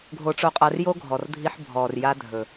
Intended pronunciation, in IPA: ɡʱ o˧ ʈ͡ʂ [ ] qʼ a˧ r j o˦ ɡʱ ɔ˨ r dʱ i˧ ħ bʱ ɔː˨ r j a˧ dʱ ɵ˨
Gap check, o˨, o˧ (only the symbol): o˧